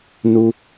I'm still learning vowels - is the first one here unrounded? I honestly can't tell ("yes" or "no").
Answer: no